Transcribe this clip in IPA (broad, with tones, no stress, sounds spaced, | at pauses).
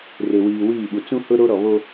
r e˨ w iː˨ w iː˦˨ ɓ u˨ t͡s ũ˦ h ʊ˦ ɾ o˦ ɾ ɔ˨ β o˦